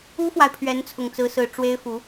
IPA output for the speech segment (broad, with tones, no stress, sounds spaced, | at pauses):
u˥ f w a˨ ɪ̯ pʰ ɥ ɛ˧˥ n t͡sʰ ʊ˨˩ ŋ t͡s ɹ̩˧˥ s ɹ̩˨˩ ʈ͡ʂ w e˥ ɪ̯ f u˧˥